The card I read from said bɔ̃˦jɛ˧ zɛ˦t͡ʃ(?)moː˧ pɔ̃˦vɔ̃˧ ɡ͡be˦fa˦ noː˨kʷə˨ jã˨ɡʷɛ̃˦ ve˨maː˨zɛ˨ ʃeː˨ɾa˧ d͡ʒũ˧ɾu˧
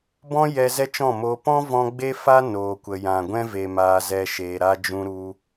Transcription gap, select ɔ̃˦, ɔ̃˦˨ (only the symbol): ɔ̃˦˨